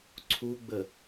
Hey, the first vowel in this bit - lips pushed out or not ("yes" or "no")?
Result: yes